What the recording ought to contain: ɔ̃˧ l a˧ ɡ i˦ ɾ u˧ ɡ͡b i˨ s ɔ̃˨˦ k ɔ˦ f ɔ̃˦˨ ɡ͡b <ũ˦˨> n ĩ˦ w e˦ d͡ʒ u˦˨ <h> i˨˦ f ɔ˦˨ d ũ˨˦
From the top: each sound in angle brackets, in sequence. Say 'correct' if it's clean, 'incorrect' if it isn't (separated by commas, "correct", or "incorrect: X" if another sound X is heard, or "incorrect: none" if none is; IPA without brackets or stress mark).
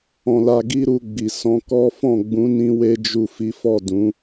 incorrect: ũ˨˦, incorrect: f